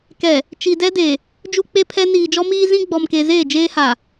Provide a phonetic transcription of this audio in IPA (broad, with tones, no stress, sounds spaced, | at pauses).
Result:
k ɛ˨ | t͡ʃ i˨ d ɛ˦ d e˨ | d͡ʒ u˦ k͡p e˦ pʰ ɛ˦ n iː˨ d͡ʒ ɔ˦ m iː˦ z ĩ˦ ɡ͡b ɔ˨ m k e˨ z eː˦˨ d͡ʒ eː˦ h a˨